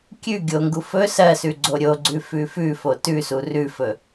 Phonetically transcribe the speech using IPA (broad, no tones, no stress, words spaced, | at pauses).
kʲʉ ɡʲoŋɡu fɵ sɜsʉ ɡ͡ǀoɾʲoɡ͡ǀʉ fʉfʉfo tʉsu rʉfɵ